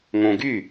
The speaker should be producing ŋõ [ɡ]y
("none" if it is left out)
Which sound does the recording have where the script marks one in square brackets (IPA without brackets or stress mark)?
ɡ